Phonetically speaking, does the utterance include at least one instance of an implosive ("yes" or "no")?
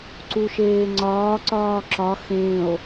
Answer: no